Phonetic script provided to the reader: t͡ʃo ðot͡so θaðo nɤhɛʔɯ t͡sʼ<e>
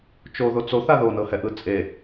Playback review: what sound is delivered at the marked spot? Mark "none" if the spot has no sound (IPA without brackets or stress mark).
e